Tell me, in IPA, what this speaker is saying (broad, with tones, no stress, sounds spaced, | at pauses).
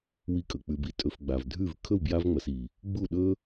w i˧ kʼ ɵ˨ k͡p ʉ˨ b i˧ tʼ ɵ˨ f ɡ͡b a˨ v dʱ ʉ˦˨ v kʰ ɵ˦˨ w b j a˧ v ŋ͡m ɐ˨ s i˨ | ɡ͡b u˦˨ ɗ ɵ˦